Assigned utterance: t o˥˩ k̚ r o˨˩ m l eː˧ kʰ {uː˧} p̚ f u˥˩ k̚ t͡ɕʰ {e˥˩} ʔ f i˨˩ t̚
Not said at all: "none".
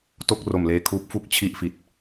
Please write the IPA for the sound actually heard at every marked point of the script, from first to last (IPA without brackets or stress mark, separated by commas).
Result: uː˦˥, i˥˩